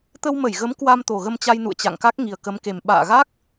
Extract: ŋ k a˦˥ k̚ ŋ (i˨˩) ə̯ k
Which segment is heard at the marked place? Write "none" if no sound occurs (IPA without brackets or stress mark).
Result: i˨˩